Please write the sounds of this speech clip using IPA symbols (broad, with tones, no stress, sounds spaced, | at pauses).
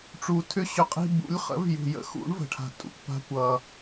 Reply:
ʈ͡ʂ u˨ tʰ ʏ˦ ɕ ʏ˧ qʼ i̤˧ b ṵ˨˦ lʲ χ ə̰˨˦ v j ṳ˨ j ə̰˧ x ṵ˨˦ ɳ v ə̤˨ ʈʰ a̤˨ tʼ ṵ˧ kʷ p a̤˦ kʷ ʌ˧